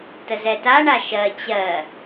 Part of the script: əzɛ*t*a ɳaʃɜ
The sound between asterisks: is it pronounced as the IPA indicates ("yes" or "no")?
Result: yes